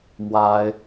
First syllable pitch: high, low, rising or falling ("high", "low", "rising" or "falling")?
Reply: high